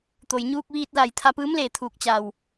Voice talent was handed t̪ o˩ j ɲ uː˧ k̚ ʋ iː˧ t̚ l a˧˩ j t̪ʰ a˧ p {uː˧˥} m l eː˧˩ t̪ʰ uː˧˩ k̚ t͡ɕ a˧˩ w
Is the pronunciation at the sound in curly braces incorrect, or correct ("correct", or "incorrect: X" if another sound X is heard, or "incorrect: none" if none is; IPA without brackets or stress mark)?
incorrect: ɯː˧˥